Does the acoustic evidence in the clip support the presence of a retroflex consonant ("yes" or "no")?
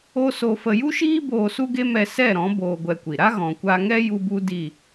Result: no